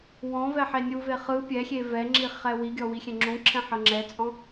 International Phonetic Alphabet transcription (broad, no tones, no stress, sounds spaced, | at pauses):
w ɔ̃ v ɛ ħ e nʲ u v e χ ɯ pʲ ɛ xʲ e v ɛ ŋ͡ǁ i χ ɛ w i ɡʲ ɔ w i xʲ ɛ̃ ŋ͡ǁ ũ ǁʰ ɛ̃ ħ ɤ ŋ͡ǁ ɛ t͡sʼ ɔ̃